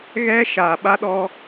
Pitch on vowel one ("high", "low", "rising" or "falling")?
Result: high